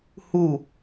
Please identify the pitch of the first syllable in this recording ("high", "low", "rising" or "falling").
falling